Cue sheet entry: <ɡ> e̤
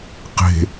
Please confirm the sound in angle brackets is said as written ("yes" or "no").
no